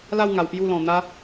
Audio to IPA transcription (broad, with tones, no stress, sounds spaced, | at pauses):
l a˥˧ w ŋ a˧ w p j u˥˧ l ɔ̃˧ n̪ a˦